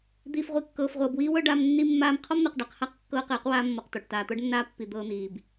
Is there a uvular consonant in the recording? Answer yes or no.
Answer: yes